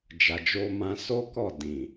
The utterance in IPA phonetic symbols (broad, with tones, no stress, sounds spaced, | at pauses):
d͡ʒ a˨ d͡ʒ o˧ m ã˧ s o˦ k ɔ˦˨ d ĩ˨